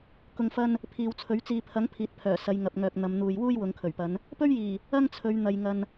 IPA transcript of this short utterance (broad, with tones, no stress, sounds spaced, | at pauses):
k ʊ˨ ŋ f ɐ˧ n | pʰ iː˨ w t͡sʰ ɵ˨˥ ɥ t͡s iː˧ pʰ ɐ˨˥ ŋ pʰ iː˨ t̚ pʰ œː˨˩ s ɐ˨˧ j ŋ ɐ˨ p̚ ŋ œː˨ k̚ n̪ ɐ˨˧ m n̪ uː˨ j w uː˥ j w ʊ˨˧ ŋ kʰ ɵ˨˩ ɥ p ɐ˨˧ n | p ɵ˥ ɥ j iː˨˩ | ɐ˥ ŋ t͡sʰ ɵ˨˧ ɥ n̪ ɐ˨ j ŋ ɐ˨ n